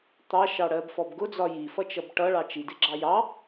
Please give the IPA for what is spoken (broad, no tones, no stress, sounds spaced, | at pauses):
t̪ ɑ ʃ ɑ ɽ ɜ b f ɔ b ɡ ʊ d͡z ɒ j i f ʌ t͡ʃ ʌ b ʈ ʌ ɭ ɑ t͡ʃ i d ɪ ɡ͡ǁ ɑ j ɑ